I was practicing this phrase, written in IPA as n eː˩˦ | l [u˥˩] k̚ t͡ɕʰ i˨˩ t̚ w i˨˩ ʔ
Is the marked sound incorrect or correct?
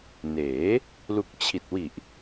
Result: incorrect